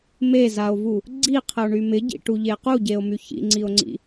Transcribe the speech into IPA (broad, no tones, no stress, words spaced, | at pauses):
mezao̯vu | ɡ͡ǀiqʰəo̯ɳy mɪɟḭʈuʎe quɟeo̯my çḭŋ͡ǀio̯ŋ͡ǀḭ